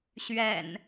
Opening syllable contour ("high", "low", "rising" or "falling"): low